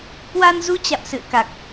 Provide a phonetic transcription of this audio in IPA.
k w a˧ n z u˧ t͡ɕ a̰˧˨ m s ɨ̰˧˨ ə̯ k a˨˩ k̚

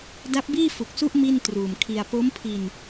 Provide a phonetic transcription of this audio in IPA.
d a˦˥ p̚ b iː˥˩ f u˨˩ k̚ s u˦˥ ʔ m i˥˩ n t r uː˨˩ m kʰ i˧ a̯ p o˦˥ m pʰ i˧ n

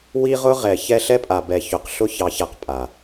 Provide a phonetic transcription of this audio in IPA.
w i˦ ʁ ʊ˦ ʁ ɛ˨ ç ɛ˦ ɬ ɛ˦ pʼ a˨ b ɛ˨ ç ʊ˨ q ɬ ʊ˦ ç ɑ˨˦ ç a˨ q pʼ a˨

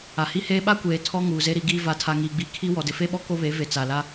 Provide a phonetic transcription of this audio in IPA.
a˨ h i˦ h eː˦ ɓ a˦ kʷ eː˨ tʰ ɔ˦ ŋ uː˨ z e˦ ɾ i˨˦ ɡ iː˦ v a˨˦ tʰ a˨ ŋ iː˨ ɡ͡b i˨ kʰ i˦ w ɔ˨ d ɪ˨ f e˦ ɓ ɔ˦ k o˦ β e˨˦ v e˨ t͡s a˨ l a˦

